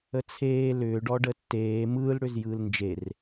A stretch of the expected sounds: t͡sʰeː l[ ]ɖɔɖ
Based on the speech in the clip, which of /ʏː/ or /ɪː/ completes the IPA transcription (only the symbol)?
ʏː